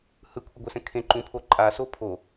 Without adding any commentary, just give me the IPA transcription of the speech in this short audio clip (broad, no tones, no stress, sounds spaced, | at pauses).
h ɯ kʷʰ ʌ ɡʷ ɛ s ɛ̃ kʰ ẽ ǃ ũ pʰ o ǃʼ a s o pʰ o